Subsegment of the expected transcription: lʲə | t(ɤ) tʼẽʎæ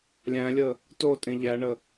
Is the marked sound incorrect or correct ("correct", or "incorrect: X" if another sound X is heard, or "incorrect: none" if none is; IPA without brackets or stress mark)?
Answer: incorrect: o